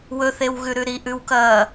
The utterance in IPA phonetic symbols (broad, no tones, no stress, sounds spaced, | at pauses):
w ɵ θ e w ɣ ʉ ɾ ʉ ɾ i ʔ ʉ w k ɐː